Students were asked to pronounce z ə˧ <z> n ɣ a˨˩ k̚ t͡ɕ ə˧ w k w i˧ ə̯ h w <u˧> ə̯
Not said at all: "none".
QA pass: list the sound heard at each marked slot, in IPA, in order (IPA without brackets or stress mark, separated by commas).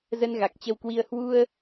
none, u˧